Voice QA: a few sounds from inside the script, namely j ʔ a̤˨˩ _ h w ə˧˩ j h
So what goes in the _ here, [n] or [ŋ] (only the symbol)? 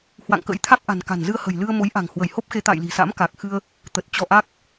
ŋ